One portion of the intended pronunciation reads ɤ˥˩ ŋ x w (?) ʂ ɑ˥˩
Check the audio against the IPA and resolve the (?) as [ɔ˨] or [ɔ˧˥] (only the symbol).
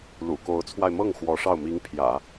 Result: ɔ˧˥